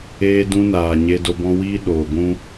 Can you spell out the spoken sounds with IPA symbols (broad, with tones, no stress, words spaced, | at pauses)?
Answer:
eː˧dũ˧naː˨ ɲe˧do˧bɔ̃˦ wiː˦ ɗoː˨ ɡʷũ˦